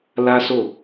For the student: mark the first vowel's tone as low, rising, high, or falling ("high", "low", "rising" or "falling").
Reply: high